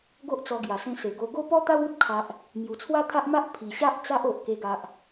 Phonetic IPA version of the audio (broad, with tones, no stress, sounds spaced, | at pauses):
ɡ o˦ ʔ t͡s ɔ˧ ɡ j a˨˩ s ẽ˧ s e˨˩ ɡ o˧ ɡ o˦ p ɔ˦ t̪ a˦ w u˦ t̚ kʰ a˨ ʔ | m j u˨˩ t͡sʰ w a˦ t̪ʰ a˦ ʔ m a˦ ʔ pʰ i˨˩ ɕ a˦ ʔ t͡s a˦ ʔ o˨ ʔ k e˧ ɡ a˨ ʔ